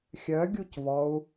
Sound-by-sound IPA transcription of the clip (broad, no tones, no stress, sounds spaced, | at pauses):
xʲ œ ɡʲ u c v ɔ u̯